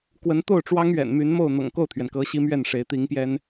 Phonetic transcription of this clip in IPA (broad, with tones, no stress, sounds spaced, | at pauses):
k w ə˧˥ n t̪ o˥˩ ʊ̯ ʈ͡ʂ w ɑ˥ ŋ ɥ ɛ̰˨˩ n m y˧˥ n m o˥˩ ʊ̯ n̪ ɤ̰˨˩ ŋ k o˥˩ ʊ̯ t̪ʰ ɥ ɛ˩ n k ɤ˧˥ ɕ i˥ m ɥ ɛ˥˩ n ʂ e˧˥ ɪ̯ t̪ i˧˥ ŋ p j ɛ˥ n